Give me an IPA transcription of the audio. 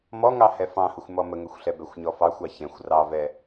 m ɔ ŋ ɑ h ɛ f ɑ̃ h ʊ xʷ m ɔ m ə ŋ ə xʷ ɬ ɛ b ɛ xʷ ɲ ɔ f ɑ xʷ ɑ ç ɛ̃ xʷ r ɑ v ɛ

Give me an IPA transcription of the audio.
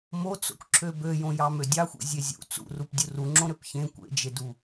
m o t͡s o̰ kʷ ǁʰ ø b ø j õ j ɑ m ø dʲ ɑ xʷ ḭ zʲ e zʲ ṵ t͡s ṵ r u p dʲ u r u ŋ͡ǁ õ ɾ ø p ç ẽ kʷ ḛ d͡ʒ e d u

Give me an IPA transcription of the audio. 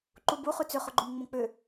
ǃ u b u χ ʉ t͡s ʏ χ ʊ ɡ͡ǃ o m ŋ͡m õ k͡p ʏ

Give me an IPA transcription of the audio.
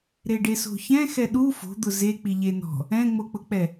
ɾ e ɖ e s o̤ ç ɛ̃ x ɛ ɗ u f o̤ d̪ ʊ z e k͡p i ʎ e n ɔ̤ | ɛ̃ ŋ͡m o k͡p ʊ k͡p ɛ

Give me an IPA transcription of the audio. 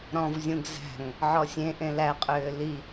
ɾ ɔ̃ v zʲ ũ ɡ z æ̤ ŋ | ʕ ɔ sʲ ẽ ʔ ẽ l æ qʼ ʏː l i

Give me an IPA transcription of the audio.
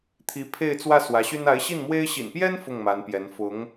t̪ʰ i˧˥ pʰ e˥˧ ɪ̯ t͡s w ä˥˩ s w ä˧˥ ɕ y˥ n a˧˥ ɪ̯ ɕ i˥˩ n m w e˥ ɪ̯ ɕ ḭ˨˩ n p j ɛ˥ n f ʊ˥˩ ŋ m a˧˥ n p j ɛ˧˥ n f ʊ˧˥ ŋ

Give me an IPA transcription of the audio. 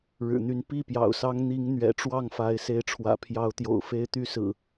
ɻ ɻ̩˨˩ n̪ y˨˦ n p i˥˨ p j ɑ̰˨˩ ʊ̯ s ɑ˦ ŋ n̪ i˨˦ ŋ n̪ ɥ ɛ̰˨˩ ʈ͡ʂ w ɑ˥˨ ŋ f a˨˦ ɪ̯ s e˨˦ ɪ̯ ʈ͡ʂʰ w ä̰˨˩ pʰ j ɑ˨˦ ʊ̯ t̪ j o̰˨˩ ʊ̯ f e˦ ɪ̯ t̪ y˦ s ɹ̩˨˩

